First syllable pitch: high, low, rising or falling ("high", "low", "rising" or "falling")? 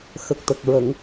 low